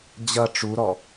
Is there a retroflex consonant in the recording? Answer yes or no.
yes